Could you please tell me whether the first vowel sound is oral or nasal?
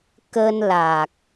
oral